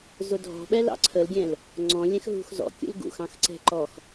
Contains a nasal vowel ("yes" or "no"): yes